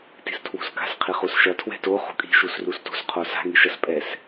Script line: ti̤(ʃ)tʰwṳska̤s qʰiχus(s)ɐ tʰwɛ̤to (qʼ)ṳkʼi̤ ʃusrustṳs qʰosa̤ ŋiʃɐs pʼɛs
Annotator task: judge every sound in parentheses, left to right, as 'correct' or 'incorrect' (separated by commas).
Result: incorrect, incorrect, incorrect